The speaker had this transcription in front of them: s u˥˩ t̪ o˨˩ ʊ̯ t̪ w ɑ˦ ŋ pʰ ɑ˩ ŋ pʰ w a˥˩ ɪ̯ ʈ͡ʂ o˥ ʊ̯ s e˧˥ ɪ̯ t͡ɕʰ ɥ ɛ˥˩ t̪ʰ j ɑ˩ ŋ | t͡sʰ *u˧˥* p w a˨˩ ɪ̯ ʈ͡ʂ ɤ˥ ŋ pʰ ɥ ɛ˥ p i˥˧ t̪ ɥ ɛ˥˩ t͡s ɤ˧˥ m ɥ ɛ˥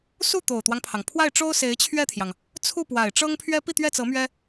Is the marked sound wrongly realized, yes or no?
yes